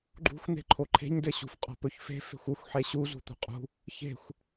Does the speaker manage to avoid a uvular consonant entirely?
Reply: no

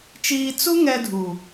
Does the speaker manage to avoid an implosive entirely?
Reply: yes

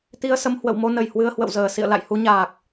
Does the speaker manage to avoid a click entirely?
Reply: yes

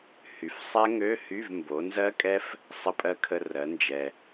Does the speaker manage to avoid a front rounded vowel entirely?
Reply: no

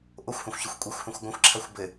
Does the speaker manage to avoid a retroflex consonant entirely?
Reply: yes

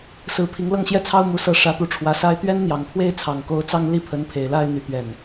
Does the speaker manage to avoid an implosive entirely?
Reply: yes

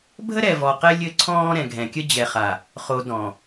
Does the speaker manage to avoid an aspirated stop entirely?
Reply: no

